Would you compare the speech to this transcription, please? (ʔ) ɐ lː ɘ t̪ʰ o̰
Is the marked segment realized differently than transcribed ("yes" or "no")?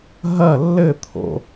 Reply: yes